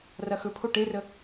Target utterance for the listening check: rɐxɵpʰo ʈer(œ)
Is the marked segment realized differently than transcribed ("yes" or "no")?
yes